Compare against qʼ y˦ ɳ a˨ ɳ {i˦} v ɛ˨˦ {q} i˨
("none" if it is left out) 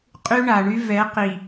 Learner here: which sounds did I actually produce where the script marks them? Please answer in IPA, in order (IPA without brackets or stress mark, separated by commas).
y˦, q